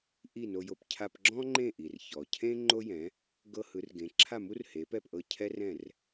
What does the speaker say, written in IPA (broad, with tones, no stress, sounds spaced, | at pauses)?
ʔ i˥˩ n o˧ j o˧ p cʰ a˧ p ɡ͡ǁ ɔ̃˥ ŋ͡ǃ ẽ˥˩ ʔ i˩ r ç ɔ˩ cʰ ẽ˥ ŋ͡ǃ o˥ j ɛ̃˩˥ | ɡ ɤ˧ h ɯ˩˥ r ɡ ẽ˩˥ ǁʰ a˥˩ m u˥ r h e˩˥ p ɛ˥˩ p ʔ ɤ˥˩ cʰ ɛ˥ r ɛ̃˥˩ r